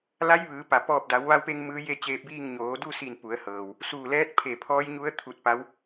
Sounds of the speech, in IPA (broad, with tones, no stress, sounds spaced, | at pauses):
l a˧˥ j ʋ ɯː˩˧ p a˧˩ p ɔː˧˩ p̚ d a˩˧ w ʋ a˧ w p e˧ ŋ m ɯː˧˥ j e˥˨ t͡ɕ eː˧ p̚ b iː˥˨ ŋ ɲ oː˩˧ d u˥˨ s i˧˩ n p u˩˧ ə̯ h ɤː˩ w | s uː˧˩ l ɛː˧˥ t̚ pʰ e˧˩ pʰ ɔː˧˥ j ɲ u˧˥ ə̯ t̪ʰ u˧ t̚ p a˧˥ w